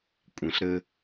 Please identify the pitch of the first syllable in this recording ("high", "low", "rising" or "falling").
low